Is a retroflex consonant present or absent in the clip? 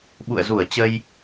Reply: absent